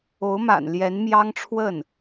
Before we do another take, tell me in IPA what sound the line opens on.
o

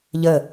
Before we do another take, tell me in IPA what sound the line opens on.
ʎ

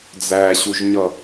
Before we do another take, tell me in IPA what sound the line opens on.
d͡z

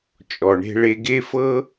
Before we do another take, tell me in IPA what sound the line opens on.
t͡ʃʼ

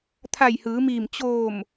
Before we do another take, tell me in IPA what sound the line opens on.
t̪ʰ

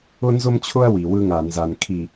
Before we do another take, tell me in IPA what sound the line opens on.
ʊ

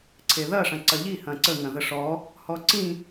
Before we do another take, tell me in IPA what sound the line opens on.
ǀʰ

